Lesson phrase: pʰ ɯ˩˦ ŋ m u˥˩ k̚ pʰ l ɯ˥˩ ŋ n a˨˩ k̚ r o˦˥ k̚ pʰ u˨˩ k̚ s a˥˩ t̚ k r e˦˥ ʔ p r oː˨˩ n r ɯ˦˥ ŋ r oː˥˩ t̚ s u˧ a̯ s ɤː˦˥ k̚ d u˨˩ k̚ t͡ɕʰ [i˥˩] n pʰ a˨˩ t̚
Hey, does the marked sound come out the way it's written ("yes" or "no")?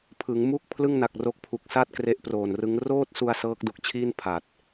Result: no